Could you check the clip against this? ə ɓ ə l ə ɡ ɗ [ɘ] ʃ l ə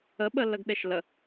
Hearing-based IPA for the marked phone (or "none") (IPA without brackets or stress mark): e